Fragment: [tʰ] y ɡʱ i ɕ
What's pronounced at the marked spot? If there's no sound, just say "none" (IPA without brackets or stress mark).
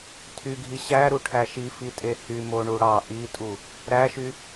tʰ